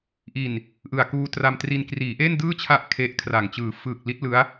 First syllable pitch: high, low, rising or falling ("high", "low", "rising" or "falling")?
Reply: low